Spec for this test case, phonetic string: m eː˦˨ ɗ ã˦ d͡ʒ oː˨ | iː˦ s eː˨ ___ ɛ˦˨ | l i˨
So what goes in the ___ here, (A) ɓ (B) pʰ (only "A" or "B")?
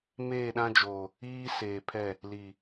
B